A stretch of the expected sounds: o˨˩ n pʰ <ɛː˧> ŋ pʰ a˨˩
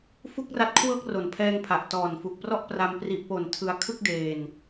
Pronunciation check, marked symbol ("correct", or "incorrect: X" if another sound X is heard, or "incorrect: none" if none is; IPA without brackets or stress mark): correct